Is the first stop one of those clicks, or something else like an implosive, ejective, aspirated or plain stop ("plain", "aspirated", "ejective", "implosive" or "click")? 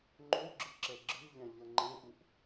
click